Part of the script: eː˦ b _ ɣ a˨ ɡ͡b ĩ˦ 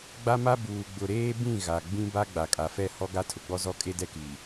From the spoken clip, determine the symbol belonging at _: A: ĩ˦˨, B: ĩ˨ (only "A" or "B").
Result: A